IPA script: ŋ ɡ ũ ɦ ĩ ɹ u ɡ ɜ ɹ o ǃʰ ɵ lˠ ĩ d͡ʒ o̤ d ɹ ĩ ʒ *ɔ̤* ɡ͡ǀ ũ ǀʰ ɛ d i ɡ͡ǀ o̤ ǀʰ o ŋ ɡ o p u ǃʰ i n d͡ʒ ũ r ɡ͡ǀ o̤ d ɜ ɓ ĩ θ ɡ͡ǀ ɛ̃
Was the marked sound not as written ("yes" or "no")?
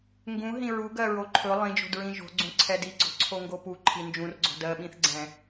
yes